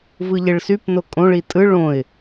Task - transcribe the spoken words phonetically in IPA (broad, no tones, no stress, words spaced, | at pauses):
vɯʎeɭsypno kʼõɭi tʼɯ ɭõɪ̯